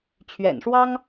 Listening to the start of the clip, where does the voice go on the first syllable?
low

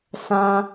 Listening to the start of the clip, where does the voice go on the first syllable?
high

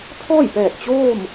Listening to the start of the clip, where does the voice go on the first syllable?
falling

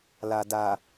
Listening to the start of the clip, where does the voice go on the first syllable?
low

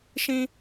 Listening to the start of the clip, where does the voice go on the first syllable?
high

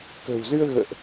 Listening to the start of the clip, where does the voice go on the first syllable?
low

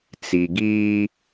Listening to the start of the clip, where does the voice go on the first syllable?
low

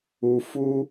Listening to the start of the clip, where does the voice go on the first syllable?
low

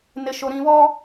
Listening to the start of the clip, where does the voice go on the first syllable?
low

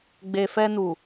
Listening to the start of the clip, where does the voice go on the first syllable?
low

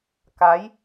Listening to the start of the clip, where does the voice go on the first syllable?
rising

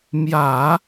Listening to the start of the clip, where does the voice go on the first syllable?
low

